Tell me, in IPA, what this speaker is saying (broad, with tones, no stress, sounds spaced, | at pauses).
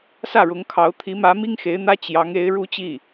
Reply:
s ä˥˩ ɻ ʊ˧˥ ŋ kʰ ɑ˧˥ ʊ̯ t̪ʰ i˧˥ m ä˧˥ m i˥ ŋ x e˧˥ ɪ̯ n̪ ä˥ t͡ɕ j ɑ˧˥ ŋ e˧˥ ɪ̯ ɻ u˥ t͡ɕ i˥˩